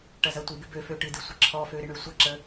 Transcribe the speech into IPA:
ʈ ɐ z ɐ tʷ ɨ b ɪ b ø f ø ʈ ɨ d ɨ sʷ ə ǁʰ ɔ f ø ɾ ɪ ɳ ø sʷ ɐ ǁ ə

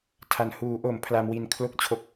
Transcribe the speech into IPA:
tʰ a˨˩ n h uː˩˦ ʔ o˩˦ m pʰ l a˦˥ m w i˦˥ n kʰ l o˥˩ k̚ t͡ɕʰ o˦˥ k̚

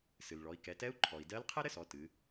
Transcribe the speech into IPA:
s ɨ˩ l ɭ ɔ˩˧ i̯ k ɛ˩˧ t ɛ˧˥ u̯ ǃʰ ɔ˩ i̯ d ɜ˧˥ l qʰ ɛ˥ ɾ ɘ˥ s ɔ˩˧ t ɨ˩˧

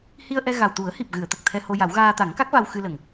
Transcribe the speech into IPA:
h i˧ ə̯ ʔ ɛ˧ ɣ a˨˩ w t̪ u˨˩˦ ə̯ h i˨˩ p̚ ɣ ɨ˨˩˨ ə̯ t̪ ə˨˩ k̚ t̪ʰ ɛ˧ h o˧ j a˨˩˦ w ɣ aː˧ t̪ a˨˩˦ ŋ k a˦˥ k̚ v a˧ w x ɨ˧ l ə˨˩˨ ŋ

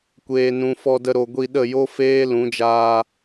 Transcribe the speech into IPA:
kʷ eː˨ n ũ˨ f ɔ˧ d ə˧ ɾ o˨ ɡʷ i˧ ɗ ə˦˨ j o˦ f eː˦ l ũ˨˦ d͡ʒ aː˧

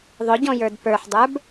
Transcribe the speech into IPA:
ðˤ ʊ ɟ ɔ̃ j ə˞ d p ə˞ ħ dˤ ə˞ b

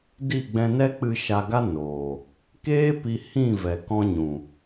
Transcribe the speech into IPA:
d i˦˨ ɡ͡b ɛ̃˧ n ɛ˦ k͡p ɨ˧ ʃ a˧ ɡ a˦ n oː˨ | k eː˦ p i˧ h ĩ˦˨ v ɛ˨ k ɔ̃˧ ɲ ũ˨

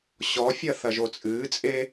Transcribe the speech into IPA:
ɕ ɔ fʲ ɐ θ ɐ ʒ o t͡sʼ ɨː t͡sʼ e

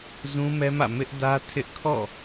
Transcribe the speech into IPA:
z ũ˦ m ɛ˦ m ä̰˦˨ m ɪ˦ ʔ d ä˦ tʰ ɪ˦ ʔ kʰ ɔ̰˦˨

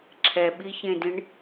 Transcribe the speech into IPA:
ǁʰ ɛ ɓ i ç ẽ d ĩ ɳ

